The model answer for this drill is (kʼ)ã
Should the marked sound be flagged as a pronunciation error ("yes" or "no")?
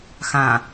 yes